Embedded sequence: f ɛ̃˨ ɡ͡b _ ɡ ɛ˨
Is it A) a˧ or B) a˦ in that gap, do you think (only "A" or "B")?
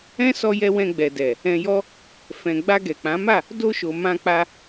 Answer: A